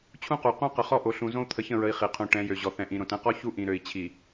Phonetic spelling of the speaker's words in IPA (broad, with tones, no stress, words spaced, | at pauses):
t͡ɕʰũ˦qu˨ qũ˦ qə˨χɔ˦ʔo˨ɬũ˨ zõ˦u̯t̪ʰə˨çə̃˦˨ɹə˨i̯ χi˨qʰũ˨ʈɛ̃˨˦jø˨ ʑɔ˨θɛ̃˨ʔĩ˨ ɾõ˨tɛ̃˦qɔ˦ çu˦ʔĩ˨ɾø˨i̯ t͡ɕʰi˨